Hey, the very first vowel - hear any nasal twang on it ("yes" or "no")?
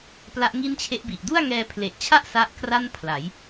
no